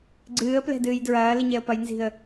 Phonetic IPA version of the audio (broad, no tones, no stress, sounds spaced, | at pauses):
ɡ͡ǀ ɨː ə̯ p l ɛ̤ d ɨː j d ɹ ɐː l i ɲ ɛ ə̯ p ɐ j n z i̤ ə̯